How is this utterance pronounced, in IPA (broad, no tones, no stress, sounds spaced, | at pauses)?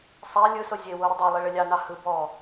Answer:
sˤ æ lʲ ɯ s o zʲ e w o ɾ ə dˤ i lˠ i ɭ ə lʲ ɑ n ɑ h ɯ b ɔ